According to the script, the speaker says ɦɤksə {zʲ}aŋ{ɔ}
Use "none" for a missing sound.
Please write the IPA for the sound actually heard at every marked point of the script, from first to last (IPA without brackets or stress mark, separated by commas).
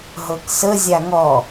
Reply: zʲ, ɔ